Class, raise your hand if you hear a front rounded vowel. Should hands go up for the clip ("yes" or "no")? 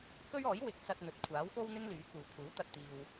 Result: yes